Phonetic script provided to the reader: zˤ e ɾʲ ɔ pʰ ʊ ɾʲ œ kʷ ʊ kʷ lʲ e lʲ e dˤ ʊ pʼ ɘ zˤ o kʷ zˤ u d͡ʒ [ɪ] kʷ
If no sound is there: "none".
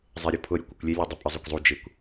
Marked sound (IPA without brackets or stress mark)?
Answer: ɪ